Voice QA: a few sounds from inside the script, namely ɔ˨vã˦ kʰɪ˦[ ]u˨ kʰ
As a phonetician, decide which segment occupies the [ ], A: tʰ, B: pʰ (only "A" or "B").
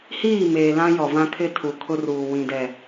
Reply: A